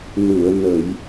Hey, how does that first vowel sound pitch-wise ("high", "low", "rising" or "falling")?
low